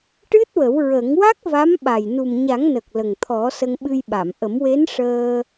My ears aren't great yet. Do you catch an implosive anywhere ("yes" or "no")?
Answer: yes